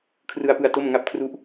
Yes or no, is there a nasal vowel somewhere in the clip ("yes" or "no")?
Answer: no